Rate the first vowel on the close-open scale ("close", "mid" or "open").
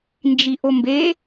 close